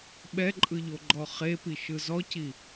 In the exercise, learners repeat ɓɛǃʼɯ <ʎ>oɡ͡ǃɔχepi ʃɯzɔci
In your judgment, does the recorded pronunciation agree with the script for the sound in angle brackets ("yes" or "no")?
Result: yes